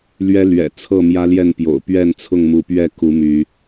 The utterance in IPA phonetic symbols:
l ɥ ɛ˦ l ɥ ɛ̰˨˩ t͡sʰ ɤ˥˨ m j ä˦ l j ɛ˥˨ n p j o̰˨˩ ʊ̯ p ɥ ɛ˥˨ n t͡sʰ ʊ˥˨ ŋ m u˨˦ p ɥ ɛ˥˨ k u˨˦ m y˨˦

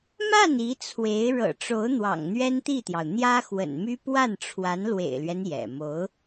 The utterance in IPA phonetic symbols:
m a˥˩ n i˧˥ t͡sʰ w e˧˥ ɪ̯ ɻ ɤ̰˨˩ ʈ͡ʂ o˧˥ ʊ̯ n̪ w ɑ̰˨˩ ŋ n̪ ɥ ɛ˥ n t̪ i˥˩ t̪ j ɑ˩ ʊ̯ n̪ j ä˥ x w ə̰˨˩ n m y˥ p w a˥˩ n ʈ͡ʂʰ w a˧˥ n l w ḛ˨˩ ɪ̯ l ɥ ɛ˦ n j ɛ̰˨˩ m o˧˥ ʊ̯

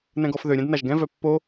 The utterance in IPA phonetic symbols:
n ɛ̃ ɡ ɔ f ð ø ɾʲ ɛ̃ d n a ʒ ɡ ɛ̃ v œ pː o

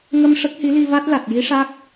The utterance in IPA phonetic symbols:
ŋ ə˧ m ʂ ə˦˥ k̚ h i˧˥ l i˧ v a˦˥ t̚ l a˨˩ t̚ j i˧˥ ʂ a˦˥ k̚

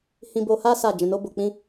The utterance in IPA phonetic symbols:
h ĩ˧ b o˧ h a˦ s a˦˨ d͡ʒ ɛ̃˧ n o˦ b o˧ k͡p ĩ˦

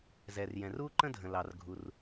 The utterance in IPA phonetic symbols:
z ɛ˩ r j ɛ̃˩ r u˥ ǃ ə̃˥ dʱ ə̃˩ l ɑ˩ r ɡʱ u˩ r

